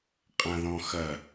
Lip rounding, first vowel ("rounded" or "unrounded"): unrounded